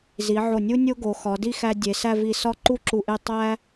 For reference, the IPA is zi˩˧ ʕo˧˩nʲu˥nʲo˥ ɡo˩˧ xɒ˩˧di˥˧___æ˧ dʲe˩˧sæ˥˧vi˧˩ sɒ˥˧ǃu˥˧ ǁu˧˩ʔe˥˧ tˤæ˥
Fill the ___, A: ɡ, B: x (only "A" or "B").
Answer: B